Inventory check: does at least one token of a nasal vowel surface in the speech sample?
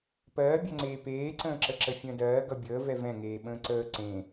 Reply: yes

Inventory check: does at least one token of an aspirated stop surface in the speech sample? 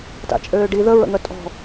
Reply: no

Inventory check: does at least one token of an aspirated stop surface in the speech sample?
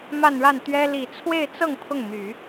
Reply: yes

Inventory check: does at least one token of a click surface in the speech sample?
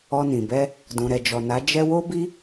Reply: no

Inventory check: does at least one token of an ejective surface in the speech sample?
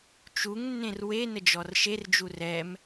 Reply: no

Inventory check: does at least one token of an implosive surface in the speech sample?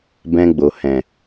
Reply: no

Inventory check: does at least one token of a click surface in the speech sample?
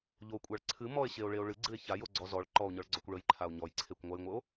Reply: yes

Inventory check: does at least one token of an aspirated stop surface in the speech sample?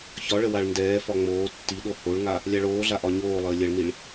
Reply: no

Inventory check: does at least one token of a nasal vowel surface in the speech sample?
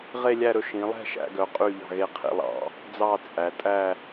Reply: yes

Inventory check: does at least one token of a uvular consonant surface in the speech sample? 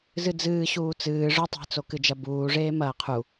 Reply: yes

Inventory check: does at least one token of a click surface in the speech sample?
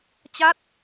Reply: no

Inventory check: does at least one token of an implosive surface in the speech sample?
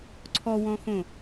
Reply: no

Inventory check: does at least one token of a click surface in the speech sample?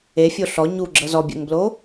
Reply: yes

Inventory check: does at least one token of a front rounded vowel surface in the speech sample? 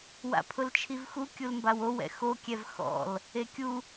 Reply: no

